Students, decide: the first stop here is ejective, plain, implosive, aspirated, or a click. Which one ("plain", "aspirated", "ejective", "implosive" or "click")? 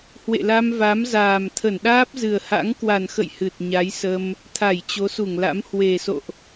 aspirated